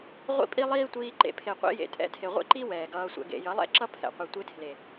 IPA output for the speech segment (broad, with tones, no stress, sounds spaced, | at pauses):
ʁʷ ḭ˦ pʼ i˦ lˠ iː˦ tʷ iː˧ ǃ ḛ˨ pʰ e˨ qʷ ḭ˧ j ḛ˨ tʼ ɛ̰˧ tʰ e˨ ʁʷ ḛ˦ ǃ i˦ w ɛː˨ ɡ ʌː˧ sʷ ɛ̰˧ ɡ ḛ˨ j ʌ˨˦ lˠ ɛ̰˦ ǁ ʌ˦ pʰ ɛ̰˨ qʷ ɛ˨ tʷ e˧ tʰ l e˨